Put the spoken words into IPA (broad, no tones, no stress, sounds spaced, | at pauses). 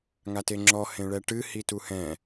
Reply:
ŋ a t e ŋ͡ǁ ɔ h ẽ ɭ ɛ ʈ ɨ h i t u h ɛ̃